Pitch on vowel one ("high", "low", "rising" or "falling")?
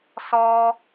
high